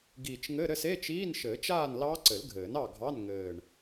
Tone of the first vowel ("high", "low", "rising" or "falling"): low